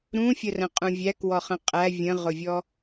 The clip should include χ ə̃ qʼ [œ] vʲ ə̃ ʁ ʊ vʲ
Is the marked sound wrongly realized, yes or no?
yes